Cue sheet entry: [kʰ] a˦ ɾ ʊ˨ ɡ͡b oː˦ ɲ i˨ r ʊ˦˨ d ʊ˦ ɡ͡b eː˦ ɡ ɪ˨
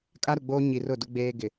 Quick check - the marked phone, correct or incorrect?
incorrect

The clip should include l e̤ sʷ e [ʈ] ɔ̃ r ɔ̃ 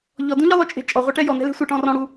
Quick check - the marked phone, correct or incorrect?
correct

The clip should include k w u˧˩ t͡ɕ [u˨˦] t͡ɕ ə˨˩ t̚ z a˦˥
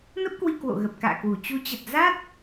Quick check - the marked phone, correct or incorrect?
correct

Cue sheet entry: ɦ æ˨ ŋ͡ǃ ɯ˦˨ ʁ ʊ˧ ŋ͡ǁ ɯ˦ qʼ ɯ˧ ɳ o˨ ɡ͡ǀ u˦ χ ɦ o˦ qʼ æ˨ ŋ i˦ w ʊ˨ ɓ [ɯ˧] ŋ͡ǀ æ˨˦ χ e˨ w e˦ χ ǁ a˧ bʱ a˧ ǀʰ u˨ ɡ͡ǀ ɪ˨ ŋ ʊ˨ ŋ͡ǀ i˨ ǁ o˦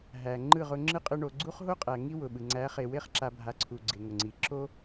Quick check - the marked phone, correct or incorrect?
incorrect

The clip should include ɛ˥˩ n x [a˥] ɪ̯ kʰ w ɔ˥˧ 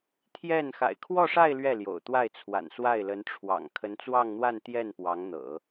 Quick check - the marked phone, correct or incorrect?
incorrect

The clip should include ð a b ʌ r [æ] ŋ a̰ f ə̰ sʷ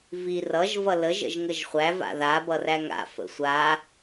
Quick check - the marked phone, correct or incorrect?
correct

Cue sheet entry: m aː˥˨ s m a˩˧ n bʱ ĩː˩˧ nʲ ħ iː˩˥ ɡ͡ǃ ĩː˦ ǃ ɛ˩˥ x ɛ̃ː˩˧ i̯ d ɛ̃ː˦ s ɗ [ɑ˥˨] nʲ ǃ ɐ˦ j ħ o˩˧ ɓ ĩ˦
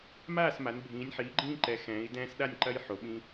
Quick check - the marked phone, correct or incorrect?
incorrect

